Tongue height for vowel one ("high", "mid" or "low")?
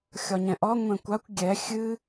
low